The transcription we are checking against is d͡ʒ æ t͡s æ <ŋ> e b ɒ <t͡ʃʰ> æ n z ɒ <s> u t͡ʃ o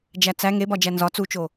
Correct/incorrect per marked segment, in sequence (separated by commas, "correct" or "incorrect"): correct, incorrect, incorrect